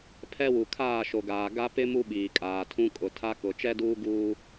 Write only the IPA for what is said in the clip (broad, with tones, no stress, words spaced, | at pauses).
pʰɛ˦wu˨ kʰaː˦˨ʃo˨ɡaː˨ ɡa˦pɪ˦ mu˦ɓiː˨kʼaː˨tʰũ˦ kʼʊ˨tʰa˦ kʊ˨ t͡ʃɛ˦duː˦ ɡuː˦